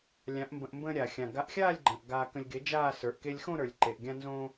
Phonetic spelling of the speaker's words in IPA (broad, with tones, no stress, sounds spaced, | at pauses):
lʲ ã˨˥ ʔ m b ə̃˧ ʔ m b ə̃ː˧ ɾʲ a˩ xʲ ã˩ ɡ a˨˥ ʔ xʲ aː˥˧ lʲ ɡ͡ǃ ə̃ː˩ ʔ ɡ aː˧ k ə̃˧ lʲ ɡ e˨˥ d͡ʒ aː˥˧ s ə˞˩ ʔ k e˧ lʲ x õ˥˧ ɾ ə˞˩ lʲ ǃ e˩ ʔ ɡʲ ã˧ n z õ˧